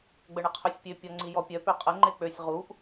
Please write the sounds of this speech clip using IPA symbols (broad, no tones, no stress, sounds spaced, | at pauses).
ɡ͡b ə ɳ ə qʰ ø sʲ pʲ ø pʲ ɔ ŋ͡ǀ i j ɔ pʲ œ p ø qʼ ə ŋ͡ǃ e k͡p ø sʲ ʁ u ʔ